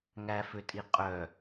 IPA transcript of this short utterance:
ŋ æ f ø tʼ i qʼ œ

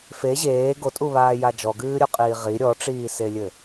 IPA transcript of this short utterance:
f e ʑ eː ɡ o tʼ u β aː j a d͡ʒ ɔ ɡ ɨː ɾʲ o qʼ iː ʁ i ɾʲ ɔ ʈ͡ʂ iː s e lʲ ɘ

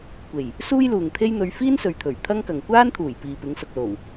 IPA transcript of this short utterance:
kʷ e˨˩ j | s uː˥ j l uː˨ ŋ t̪ʰ e˥ j n̪ ɵ˧ ɥ f iː˥ n s ɵ˨ ɥ t̪ʰ ɵ˨˩ ɥ t̪ʰ ɐ˥ ŋ k ɐ˨ ŋ kʷ aː˥ n t̪ʰ uː˨˩ j p iː˨ p ɪ˨˧ ŋ s ʊ˨ k̚ l o˨˩ w

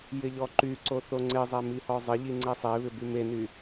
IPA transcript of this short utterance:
j ɪ ʎ ɔ ǃ y ǀ o θ o ŋ͡ǀ ɪ zˤ ɛ m i h ɔ zˤ ɪ ʎ i ŋ͡ǀ e sˤ e β ɪ b y m e n y

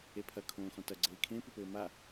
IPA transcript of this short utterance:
e pʰ ɐ kʰ õː x ɔ̃ t ɐ ɡ͡ǀ ɘː i̯ kʰ ẽ p ɨ p ɘː m a

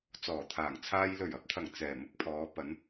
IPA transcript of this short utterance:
t͡s ɔː˨˩ t̪ʰ aː˨˩ ŋ t͡sʰ aː˧ j l ɵ˨˩ ɥ ɐ˨ p̚ t̪ʰ ɐ˨˩ ŋ t͡s ɛː˨˩ m ʊ˧ k̚ pʰ ɔː˨˧ p ɐ˨˧ n

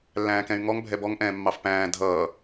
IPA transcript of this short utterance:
lː æ̃ː k ɛ̃ y̯ ŋ ɔ ŋ bʱ ɛ b ɔ ŋ ʔ ɛ̃ː mː ɑ f p æ̃ː dʱ ʌː

